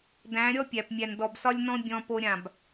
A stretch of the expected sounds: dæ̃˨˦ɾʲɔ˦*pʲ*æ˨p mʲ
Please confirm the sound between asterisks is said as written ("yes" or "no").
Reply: yes